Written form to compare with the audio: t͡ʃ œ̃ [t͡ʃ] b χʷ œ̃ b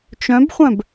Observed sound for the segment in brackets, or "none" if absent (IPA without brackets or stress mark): none